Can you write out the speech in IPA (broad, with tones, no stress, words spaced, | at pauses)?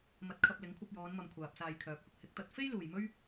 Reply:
mɐ˧t̚kʰɐ˧p̚ lɪ˨˥ŋkʷʰɐ˧p̚jɔː˨˧nmɐ˨m kʷʰaː˨p̚ saː˧jkʰœː˨˥p̚hʊ˨k̚ hɪ˨˥k̚t̪ɐ˨˥t̚ fe˥j luː˨jmɵ˥ɥ